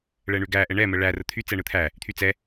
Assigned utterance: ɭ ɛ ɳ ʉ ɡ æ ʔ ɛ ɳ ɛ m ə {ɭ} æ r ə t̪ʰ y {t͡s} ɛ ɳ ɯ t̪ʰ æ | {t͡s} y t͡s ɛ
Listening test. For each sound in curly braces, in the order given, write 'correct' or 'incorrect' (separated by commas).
correct, correct, incorrect